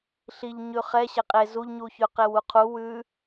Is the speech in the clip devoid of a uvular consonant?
no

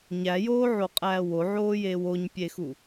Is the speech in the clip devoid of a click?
yes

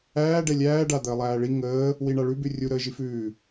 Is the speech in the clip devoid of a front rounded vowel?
yes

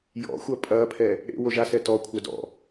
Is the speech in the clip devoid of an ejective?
no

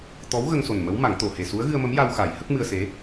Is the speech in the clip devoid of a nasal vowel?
yes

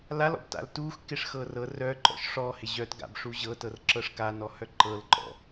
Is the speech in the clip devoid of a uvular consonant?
yes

